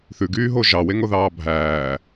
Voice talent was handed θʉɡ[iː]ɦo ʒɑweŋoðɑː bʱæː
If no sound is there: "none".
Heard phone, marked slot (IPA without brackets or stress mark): yː